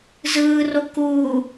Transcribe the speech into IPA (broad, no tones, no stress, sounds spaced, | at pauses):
z ɯː r o k uː